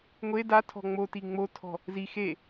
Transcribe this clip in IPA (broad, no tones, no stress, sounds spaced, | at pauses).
ŋʷ e d a tʰ ɔ̤ ŋ͡m o t i ŋ͡m o tʰ ɔ̤ | z i x e